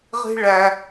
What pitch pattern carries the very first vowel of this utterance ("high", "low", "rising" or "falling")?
high